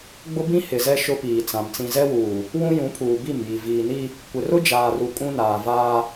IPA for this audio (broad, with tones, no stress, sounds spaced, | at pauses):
ɡ͡b ʊ˦ b ĩ˦ h ɪ˨ z ɛ˦ ʃ ʊ˦ p iː˨ t͡s ã˨ m t͡s ĩ˨ z ɛ˦ w uː˨ | w ũ˦ j ũ˨˦ pʰ uː˨ b i˦˨ m j i˨ v iː˨ n i˦ | kʷ ɪ˨ r ʊ˦ d͡ʒ aː˨ r u˨ kʼ ũ˦ n aː˨ v aː˦